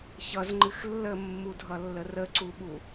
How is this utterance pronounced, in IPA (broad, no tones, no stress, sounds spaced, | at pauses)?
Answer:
ç ʌ z ŋ͡ǃ ɨ x lː ə mː u dʱ ʌ lː ə r ə ǀ u ɓ u